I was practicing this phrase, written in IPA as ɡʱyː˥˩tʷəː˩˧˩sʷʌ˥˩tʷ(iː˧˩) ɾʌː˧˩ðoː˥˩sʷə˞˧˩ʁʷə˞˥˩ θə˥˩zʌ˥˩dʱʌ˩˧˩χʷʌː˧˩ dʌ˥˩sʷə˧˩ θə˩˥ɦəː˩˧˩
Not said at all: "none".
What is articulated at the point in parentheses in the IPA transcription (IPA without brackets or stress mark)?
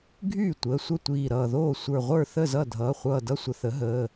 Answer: iː˧˩